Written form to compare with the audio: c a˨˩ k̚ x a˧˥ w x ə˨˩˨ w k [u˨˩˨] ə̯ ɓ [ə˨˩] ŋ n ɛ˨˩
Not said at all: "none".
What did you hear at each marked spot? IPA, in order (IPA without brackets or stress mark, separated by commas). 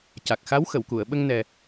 u˨˩˨, ə˧